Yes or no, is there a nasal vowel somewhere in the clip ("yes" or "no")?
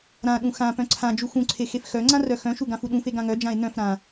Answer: yes